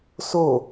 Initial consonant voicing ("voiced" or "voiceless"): voiceless